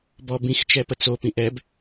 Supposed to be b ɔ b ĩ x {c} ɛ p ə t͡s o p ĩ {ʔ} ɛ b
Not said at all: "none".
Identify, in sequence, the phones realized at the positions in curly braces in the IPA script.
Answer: t͡ʃ, ʔ

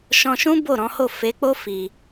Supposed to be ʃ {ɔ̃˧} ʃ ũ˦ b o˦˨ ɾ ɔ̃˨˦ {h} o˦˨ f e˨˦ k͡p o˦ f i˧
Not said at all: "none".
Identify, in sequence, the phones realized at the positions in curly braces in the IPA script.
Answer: ɔ̃˧, h

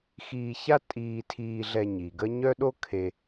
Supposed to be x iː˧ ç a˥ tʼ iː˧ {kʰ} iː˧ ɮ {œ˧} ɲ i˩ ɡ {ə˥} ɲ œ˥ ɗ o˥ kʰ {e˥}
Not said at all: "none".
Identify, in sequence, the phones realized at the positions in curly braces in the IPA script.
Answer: tʰ, ɛ˧, ə˥, e˧

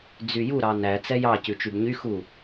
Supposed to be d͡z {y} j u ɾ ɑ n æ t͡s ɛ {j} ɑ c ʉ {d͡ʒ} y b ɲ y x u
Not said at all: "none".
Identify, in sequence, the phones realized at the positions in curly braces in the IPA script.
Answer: y, j, t͡ʃ

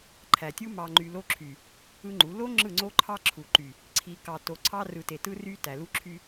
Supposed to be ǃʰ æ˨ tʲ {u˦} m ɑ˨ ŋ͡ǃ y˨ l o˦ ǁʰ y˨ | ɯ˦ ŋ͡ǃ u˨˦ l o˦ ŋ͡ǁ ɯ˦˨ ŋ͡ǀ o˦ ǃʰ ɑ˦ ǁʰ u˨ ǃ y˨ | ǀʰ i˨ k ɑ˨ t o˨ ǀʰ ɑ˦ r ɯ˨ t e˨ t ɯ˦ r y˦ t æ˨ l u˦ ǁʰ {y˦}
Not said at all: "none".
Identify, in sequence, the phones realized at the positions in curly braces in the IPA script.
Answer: u˦, y˦

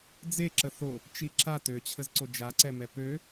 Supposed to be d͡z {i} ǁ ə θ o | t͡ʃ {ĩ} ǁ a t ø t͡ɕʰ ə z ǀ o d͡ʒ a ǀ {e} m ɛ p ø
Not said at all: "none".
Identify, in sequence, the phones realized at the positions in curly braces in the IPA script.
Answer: e, i, ɛ

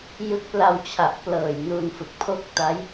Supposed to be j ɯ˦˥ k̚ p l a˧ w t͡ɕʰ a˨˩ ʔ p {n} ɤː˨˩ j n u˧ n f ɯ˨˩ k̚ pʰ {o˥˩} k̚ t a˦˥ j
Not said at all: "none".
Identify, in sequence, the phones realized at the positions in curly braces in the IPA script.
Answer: l, o˥˩

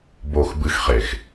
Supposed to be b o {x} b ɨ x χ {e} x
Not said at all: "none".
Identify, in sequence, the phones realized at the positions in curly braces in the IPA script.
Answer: x, e

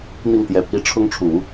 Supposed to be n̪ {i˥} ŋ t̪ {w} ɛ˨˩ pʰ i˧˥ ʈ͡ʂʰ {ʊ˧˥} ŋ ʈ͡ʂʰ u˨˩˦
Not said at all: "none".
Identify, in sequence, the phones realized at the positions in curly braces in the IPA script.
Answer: i˥˩, j, ʊ˥

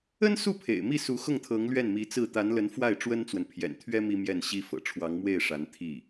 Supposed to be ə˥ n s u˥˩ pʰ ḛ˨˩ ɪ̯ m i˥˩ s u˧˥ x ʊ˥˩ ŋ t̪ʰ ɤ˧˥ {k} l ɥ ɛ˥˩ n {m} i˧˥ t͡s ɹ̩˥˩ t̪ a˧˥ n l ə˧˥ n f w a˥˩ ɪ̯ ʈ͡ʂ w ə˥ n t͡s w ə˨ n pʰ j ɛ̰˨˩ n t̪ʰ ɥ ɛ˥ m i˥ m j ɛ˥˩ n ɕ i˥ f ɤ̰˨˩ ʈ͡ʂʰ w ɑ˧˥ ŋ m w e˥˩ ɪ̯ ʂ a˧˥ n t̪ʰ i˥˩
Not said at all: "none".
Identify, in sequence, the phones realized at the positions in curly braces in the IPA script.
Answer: ŋ, m

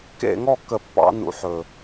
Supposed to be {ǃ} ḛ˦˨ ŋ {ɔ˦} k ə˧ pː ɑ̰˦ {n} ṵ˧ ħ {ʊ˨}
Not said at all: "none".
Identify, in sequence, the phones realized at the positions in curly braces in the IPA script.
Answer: k, ɔ˦˨, n, ɵ˨

